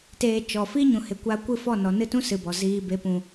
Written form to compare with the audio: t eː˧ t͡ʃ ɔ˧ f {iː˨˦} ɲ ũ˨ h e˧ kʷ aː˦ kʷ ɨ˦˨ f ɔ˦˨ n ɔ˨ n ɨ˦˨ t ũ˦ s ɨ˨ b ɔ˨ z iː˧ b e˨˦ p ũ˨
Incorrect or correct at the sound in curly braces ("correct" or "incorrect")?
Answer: incorrect